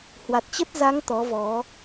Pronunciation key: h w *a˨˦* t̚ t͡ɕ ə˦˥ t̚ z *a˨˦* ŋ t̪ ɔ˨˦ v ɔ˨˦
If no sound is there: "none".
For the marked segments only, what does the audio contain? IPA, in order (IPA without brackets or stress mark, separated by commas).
a˨˩, a˨˦